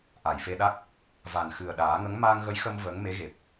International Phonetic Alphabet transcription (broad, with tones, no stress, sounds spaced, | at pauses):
ʔ a˨˩˨ j f e˧ ɗ a˦˥ k̚ | v a˨˩ n x ɨ˨˩ ə̯ ɗ aː˨˩˦ ŋ ə˧˥ ŋ m aː˧ ŋ ɣ ə˧˥ j x ə˧ m v əː˧˥ ŋ m e˧˥ ɣ e˨˩ p̚